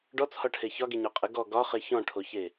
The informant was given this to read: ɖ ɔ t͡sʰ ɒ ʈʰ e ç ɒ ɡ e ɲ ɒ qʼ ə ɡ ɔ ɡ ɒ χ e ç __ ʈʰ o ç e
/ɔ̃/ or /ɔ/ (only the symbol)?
ɔ̃